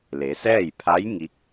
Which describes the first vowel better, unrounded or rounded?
unrounded